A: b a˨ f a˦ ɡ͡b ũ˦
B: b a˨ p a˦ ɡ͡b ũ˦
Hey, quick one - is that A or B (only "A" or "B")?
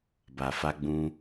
A